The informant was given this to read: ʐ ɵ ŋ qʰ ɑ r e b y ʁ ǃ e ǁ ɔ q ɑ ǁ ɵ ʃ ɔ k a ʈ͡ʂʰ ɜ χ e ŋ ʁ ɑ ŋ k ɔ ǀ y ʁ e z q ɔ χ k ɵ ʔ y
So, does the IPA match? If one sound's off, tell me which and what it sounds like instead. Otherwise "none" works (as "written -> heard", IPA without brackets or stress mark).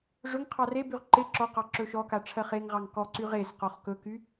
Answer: ʔ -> k